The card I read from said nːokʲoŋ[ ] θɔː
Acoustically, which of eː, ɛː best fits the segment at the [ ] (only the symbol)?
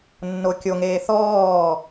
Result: eː